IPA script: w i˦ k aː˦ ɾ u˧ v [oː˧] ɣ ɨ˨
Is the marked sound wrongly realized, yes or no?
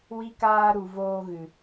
yes